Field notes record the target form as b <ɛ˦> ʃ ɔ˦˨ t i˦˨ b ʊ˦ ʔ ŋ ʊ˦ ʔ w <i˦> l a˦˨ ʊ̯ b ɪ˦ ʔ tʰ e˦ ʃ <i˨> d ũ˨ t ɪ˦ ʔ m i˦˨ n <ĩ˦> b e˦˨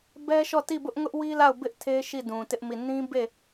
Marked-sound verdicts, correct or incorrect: correct, correct, incorrect: i˦˨, correct

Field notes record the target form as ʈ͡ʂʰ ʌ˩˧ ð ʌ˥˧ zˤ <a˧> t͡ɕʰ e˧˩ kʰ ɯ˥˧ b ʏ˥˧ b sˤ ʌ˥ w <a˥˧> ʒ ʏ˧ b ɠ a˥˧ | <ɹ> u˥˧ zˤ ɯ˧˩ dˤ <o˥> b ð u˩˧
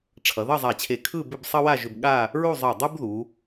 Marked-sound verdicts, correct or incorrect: incorrect: a˧˩, correct, correct, incorrect: u˥

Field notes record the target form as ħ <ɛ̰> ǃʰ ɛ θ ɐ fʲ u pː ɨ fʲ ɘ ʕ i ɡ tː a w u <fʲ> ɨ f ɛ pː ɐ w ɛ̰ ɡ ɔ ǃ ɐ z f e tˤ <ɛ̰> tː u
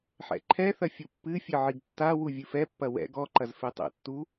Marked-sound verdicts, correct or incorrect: correct, incorrect: vʲ, correct

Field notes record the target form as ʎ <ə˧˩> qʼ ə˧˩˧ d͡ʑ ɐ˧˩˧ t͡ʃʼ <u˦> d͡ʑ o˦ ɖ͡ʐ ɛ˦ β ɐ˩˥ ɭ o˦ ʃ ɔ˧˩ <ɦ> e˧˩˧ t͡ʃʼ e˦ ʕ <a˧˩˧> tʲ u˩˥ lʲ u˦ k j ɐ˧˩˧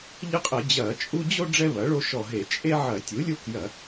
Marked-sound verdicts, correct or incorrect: incorrect: ə˦, correct, correct, incorrect: ɐ˧˩˧

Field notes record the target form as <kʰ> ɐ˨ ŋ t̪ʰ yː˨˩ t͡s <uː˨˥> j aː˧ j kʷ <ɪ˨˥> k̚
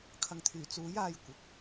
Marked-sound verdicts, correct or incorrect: correct, correct, correct

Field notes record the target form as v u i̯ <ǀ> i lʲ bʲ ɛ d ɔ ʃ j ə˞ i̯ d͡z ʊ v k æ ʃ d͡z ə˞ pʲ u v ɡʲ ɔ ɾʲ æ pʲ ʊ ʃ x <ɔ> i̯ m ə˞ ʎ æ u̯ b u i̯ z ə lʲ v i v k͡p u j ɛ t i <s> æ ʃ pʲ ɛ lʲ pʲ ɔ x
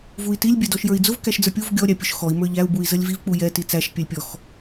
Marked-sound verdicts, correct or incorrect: incorrect: t, correct, incorrect: t͡s

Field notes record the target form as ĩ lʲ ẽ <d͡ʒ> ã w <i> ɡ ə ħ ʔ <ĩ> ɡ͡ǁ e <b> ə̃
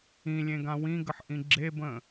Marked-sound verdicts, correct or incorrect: incorrect: ɡ, incorrect: ĩ, correct, correct

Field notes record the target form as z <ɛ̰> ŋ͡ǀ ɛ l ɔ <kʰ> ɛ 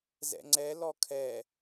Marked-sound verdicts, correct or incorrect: correct, correct

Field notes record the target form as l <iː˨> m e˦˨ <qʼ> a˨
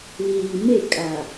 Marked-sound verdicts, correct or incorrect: correct, incorrect: kʼ

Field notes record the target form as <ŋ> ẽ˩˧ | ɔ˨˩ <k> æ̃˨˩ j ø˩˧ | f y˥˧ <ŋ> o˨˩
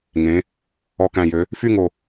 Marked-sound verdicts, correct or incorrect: correct, correct, correct

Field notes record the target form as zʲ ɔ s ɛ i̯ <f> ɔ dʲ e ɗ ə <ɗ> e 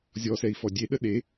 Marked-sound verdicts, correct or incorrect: correct, correct

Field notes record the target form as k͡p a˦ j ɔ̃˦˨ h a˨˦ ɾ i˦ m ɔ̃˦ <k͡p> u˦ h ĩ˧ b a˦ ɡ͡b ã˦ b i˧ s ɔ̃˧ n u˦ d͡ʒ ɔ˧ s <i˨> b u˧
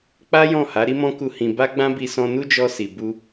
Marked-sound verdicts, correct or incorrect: incorrect: k, correct

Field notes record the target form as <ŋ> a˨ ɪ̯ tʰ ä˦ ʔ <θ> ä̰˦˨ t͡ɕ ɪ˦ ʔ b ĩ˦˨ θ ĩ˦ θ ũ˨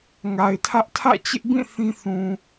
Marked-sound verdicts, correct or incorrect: correct, incorrect: tʰ

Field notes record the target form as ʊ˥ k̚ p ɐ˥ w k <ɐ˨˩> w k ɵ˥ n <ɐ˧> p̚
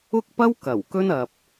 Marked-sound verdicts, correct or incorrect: correct, incorrect: ɐ˨

